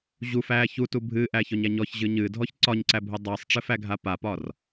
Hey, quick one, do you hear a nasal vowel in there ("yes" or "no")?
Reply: no